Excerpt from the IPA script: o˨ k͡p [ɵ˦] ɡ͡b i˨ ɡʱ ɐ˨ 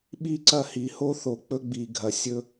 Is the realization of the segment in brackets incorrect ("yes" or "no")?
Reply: no